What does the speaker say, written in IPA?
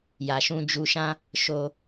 j a˨ ʃ ũ˧ d͡ʒ u˧ ʃ ã˦ | ʃ o˧

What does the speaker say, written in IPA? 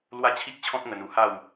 l w a˦ t͡ɕʰ i˦ k̚ t͡ɕʰ ɔ̃˦ t̚ ŋ ə˧ n u˨˩ h a˥˧ w

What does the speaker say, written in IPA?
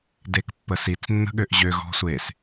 d e k pː ə s i t͡s nː ə̤ ɠ ø ʔ ʑ ø ɣ ɔ̤ sʷ e s

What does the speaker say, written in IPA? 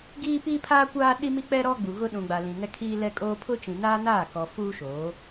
ɡ iː˦ p iː˦ pʰ aː˦ kʷ aː˦ ɗ i˦ m i˦ k͡p ɛ˦ ɾ ɔ˦ ɡ͡b u˨ ɣ ʊ˦ ɗ ũ˨ ɡ͡b a˨ l ĩ˨ ŋ ɛ˦ kʰ iː˦ l ɛ˦ kʼ oː˦ pʰ ʊ˦ t͡ʃ ĩ˨ n aː˦ n aː˦˨ k ɔ˨ f uː˦ ʃ oː˨˦

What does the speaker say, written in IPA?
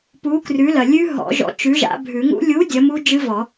p u˨˥ k r ʉ˨˥ l ɐ˨ lʲ ʉ˦˥ ɦ ɔ̰˨˩˦ ʒ ɔ̰˨˥ t͡ʃ ʉ˨˥ ʒ a̰˨˩˦ bʱ ʉ˨˩˦ ŋ ṵ˦˥ lʲ u˨˥ dʲ ɐ˨˥ m u˦˥ d͡ʒ ɨ˦˥ v ɔ˨˩˦

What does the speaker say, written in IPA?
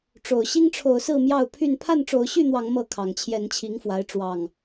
ʈ͡ʂ o˨˩ ʊ̯ ɕ i˦ ŋ ʈ͡ʂʰ o˨˦ ʊ̯ s ɹ̩˥˨ m j ɑ˥˨ ʊ̯ pʰ y˥˨ n pʰ a˥˨ n ʈ͡ʂ o˨˦ ʊ̯ ɕ y˥˨ n̪ w ɑ˨˦ ŋ m ɤ˥˨ kʰ ɑ˨˩ ŋ t͡ɕʰ j ɛ˨˦ n t͡ɕʰ i˨˦ ŋ f w a˨˦ ɪ̯ ʈ͡ʂ w ɑ˨˩ ŋ

